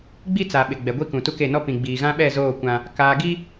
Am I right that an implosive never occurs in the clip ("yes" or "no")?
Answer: no